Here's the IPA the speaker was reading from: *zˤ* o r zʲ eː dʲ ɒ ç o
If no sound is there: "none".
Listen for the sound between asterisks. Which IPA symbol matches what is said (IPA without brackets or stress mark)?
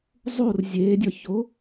zˤ